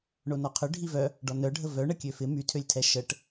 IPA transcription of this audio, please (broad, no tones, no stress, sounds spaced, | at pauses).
ɳ o n ɔ qʰ ʏ ɖʱ i v œ | ɖ ɔ n œ ɖʱ ə v œ ɳ ə kʲ ø f ɪ m y tʰ ø lʲ tʰ ɛ ʃ ə ʈ